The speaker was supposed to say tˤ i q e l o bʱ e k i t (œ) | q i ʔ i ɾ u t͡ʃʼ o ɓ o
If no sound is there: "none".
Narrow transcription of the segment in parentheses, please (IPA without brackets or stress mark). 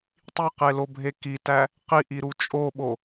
æ